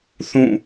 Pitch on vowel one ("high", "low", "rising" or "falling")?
falling